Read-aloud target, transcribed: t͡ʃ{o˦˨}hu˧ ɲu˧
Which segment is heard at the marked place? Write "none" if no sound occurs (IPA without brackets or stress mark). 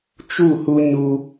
u˦˨